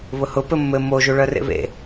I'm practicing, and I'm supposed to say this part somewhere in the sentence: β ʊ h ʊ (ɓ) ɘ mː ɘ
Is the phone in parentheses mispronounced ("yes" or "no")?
yes